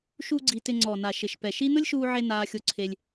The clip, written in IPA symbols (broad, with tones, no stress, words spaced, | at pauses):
ʃu˧ ɡ͡ǀi˧tɪ˧ ŋ͡ǀɔ˨na˨ ʃɪ˨ʃpɛ˨ʃi˦ nʊ˦lʲʃuː˧ʕe˧ naː˧xʲo˧ ǀʰe˧lʲ